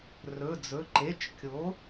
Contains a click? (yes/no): yes